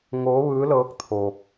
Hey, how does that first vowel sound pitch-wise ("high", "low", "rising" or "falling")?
rising